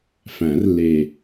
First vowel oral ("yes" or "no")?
no